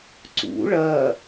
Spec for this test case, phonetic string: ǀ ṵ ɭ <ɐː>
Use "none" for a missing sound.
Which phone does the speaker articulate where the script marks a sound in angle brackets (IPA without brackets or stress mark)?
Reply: ɐː